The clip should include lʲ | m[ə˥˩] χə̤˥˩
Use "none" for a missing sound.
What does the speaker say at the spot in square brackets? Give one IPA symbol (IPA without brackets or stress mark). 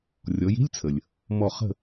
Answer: ɔ˥˩